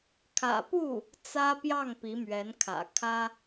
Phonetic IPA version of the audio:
kʰ ä̰˨˩ p u˥˩ | t͡s ä˥ p j ɑ˥˩ ŋ p i˧˥ m ɥ ɛ˧˥ n kʰ ä̰˨˩ kʰ ä˥

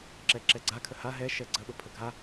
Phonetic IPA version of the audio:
ǁ ɛ ǁ ɛ ɡ͡ǀ a kʰ ə h a ɦ ɛ ʃ ɛ ɡ͡ǀ ə ɓ ə pʰ ə ɡʱ a

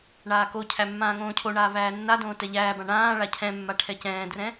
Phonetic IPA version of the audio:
ɳ aː k o cʰ æ mː ãː ŋ õː cʰ o ɳ aː v æː nː a d õː t ɛ ʎ æː b ã ɳ ãː ɭ a cʰ ɛ̃ mː a ʈʰ ɛ c ɛ̃ː d r ɛ̃

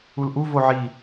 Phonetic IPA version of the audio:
u l ʔ u v o ʕ i

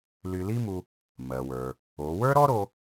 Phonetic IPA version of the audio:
l y˧ l i˥ m u˧ | m ɜ˩ w ə˞˩ | o˩˧ w ə˞˥ ɾ ɔ˥ ɾ o˧

